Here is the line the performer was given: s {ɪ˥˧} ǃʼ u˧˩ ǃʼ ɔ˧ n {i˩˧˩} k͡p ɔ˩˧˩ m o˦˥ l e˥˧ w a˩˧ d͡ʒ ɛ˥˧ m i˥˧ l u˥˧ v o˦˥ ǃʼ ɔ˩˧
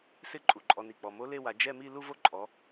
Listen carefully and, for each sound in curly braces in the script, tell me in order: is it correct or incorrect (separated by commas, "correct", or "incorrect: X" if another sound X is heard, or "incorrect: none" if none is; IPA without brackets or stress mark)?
correct, incorrect: i˧˩